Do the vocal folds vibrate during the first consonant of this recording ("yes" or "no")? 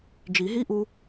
yes